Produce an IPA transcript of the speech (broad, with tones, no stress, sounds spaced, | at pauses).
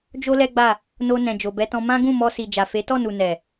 d͡ʒ o˦ l ɛ˦ ɡ͡b a˦˨ | n o˧ n ɛ̃˨ d͡ʒ o˨ b ɛ˧ t ɔ̃˧ m ã˦ ɡ ũ˦˨ m ɔ˧ s i˨ d͡ʒ a˨ f e˨˦ t ɔ˦˨ n u˨ n ɛ˨